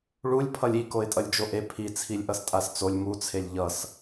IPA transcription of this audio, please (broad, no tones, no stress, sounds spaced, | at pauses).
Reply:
ɭ u lʲ pʰ ʌ lʲ i k o ɪ̯ tʼ ʌ lʲ d͡ʒ o ʔ e pʰ i t͡sʰ i lʲ ʔ ʌ s tʼ a s t͡s o lʲ m u t͡sʰ e lʲ ʎ ʌ s